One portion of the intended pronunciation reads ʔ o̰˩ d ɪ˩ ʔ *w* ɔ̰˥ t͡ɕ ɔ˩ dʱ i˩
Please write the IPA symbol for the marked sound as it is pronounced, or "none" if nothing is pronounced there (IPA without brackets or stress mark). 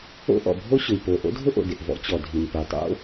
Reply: v